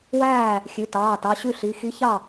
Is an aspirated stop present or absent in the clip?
absent